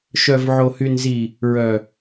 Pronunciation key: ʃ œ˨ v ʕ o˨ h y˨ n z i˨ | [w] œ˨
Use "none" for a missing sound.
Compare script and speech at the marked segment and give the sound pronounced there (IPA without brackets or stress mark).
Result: ɹ